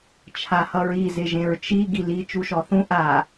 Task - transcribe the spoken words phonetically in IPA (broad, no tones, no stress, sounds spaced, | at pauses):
t͡ʃʰ a h ʌ ɹ i z ɪ ʒ ẽ ɹ t͡ʃ i ɡ i l i t͡ʃ u ʃ ɔ θ ũ ʔ a